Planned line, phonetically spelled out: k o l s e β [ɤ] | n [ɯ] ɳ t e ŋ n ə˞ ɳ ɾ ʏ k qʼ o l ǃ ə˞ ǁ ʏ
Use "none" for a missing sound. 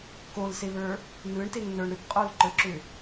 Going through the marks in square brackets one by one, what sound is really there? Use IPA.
ə˞, ɯ

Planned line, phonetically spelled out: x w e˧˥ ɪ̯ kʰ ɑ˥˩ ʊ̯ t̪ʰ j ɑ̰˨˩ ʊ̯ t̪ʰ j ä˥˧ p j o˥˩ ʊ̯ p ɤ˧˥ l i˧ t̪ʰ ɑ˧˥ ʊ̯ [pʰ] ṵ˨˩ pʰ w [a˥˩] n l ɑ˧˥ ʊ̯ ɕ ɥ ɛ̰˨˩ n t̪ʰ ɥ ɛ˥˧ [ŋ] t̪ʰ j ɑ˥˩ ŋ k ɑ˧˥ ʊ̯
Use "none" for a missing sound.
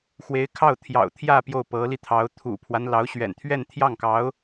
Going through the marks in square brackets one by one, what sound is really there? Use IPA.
t̪ʰ, a˦, n

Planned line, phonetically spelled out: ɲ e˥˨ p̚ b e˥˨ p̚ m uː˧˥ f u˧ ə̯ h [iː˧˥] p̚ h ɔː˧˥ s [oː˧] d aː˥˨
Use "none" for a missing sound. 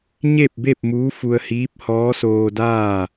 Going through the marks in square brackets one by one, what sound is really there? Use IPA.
iː˧˥, oː˧

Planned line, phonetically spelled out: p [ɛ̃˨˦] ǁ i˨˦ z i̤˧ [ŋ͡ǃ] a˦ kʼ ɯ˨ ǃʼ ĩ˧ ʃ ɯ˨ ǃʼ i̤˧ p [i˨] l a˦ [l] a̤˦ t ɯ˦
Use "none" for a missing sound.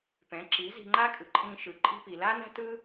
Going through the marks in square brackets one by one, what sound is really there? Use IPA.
ɛ̃˨˦, ŋ͡ǃ, i˨, n

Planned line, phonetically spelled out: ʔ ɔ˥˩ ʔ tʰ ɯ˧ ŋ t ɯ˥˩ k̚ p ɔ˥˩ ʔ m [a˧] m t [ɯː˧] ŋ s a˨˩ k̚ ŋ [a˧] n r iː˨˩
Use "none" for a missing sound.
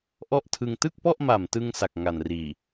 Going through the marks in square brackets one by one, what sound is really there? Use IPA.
a˨˩, ɯ˧, a˨˩

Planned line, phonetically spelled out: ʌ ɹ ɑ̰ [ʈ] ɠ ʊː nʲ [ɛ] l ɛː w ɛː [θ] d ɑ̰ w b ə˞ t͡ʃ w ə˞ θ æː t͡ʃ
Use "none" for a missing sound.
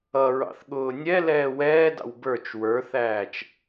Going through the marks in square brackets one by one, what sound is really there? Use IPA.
θ, ɛ, none

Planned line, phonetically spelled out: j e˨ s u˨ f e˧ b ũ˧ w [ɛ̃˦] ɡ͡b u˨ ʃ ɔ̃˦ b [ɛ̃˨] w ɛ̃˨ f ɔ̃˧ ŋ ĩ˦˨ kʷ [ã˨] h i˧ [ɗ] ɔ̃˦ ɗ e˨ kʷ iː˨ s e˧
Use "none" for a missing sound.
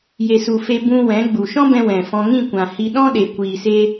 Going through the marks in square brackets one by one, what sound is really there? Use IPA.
ɛ̃˨˦, ɛ̃˧, ã˨, ɗ

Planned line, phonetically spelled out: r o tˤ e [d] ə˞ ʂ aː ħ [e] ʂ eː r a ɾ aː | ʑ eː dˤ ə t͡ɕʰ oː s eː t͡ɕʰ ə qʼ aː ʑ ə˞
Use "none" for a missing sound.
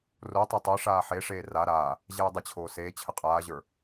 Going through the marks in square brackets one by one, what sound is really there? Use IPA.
tˤ, e

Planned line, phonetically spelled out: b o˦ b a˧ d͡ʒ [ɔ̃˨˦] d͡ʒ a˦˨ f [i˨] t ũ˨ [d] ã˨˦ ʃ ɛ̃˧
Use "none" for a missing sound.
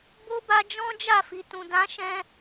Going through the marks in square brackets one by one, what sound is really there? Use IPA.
ɔ̃˦, i˨, d

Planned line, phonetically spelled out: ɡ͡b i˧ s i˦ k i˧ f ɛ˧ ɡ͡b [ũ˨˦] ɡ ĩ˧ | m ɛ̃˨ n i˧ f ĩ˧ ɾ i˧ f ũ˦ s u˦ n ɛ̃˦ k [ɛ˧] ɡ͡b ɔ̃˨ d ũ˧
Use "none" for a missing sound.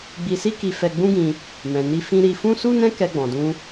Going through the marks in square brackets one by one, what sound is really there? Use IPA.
ũ˦, ɛ˧

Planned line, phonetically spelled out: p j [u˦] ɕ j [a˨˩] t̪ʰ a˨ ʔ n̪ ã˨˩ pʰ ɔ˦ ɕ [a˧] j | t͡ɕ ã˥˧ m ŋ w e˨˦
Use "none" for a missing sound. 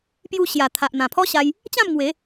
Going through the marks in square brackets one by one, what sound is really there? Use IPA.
u˧, a˨˩, a˧

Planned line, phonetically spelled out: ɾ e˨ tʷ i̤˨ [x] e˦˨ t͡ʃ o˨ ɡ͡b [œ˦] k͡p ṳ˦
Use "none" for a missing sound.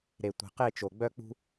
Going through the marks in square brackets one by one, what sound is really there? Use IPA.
q, œ˦

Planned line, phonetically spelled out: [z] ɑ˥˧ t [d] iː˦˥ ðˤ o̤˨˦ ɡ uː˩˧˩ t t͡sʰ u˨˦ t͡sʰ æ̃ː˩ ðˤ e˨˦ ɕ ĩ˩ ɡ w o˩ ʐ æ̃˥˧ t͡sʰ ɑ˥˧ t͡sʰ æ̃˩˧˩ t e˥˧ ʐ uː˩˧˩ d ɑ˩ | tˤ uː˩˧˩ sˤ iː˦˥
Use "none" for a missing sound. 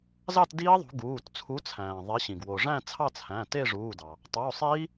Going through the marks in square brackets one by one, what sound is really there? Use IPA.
z, d

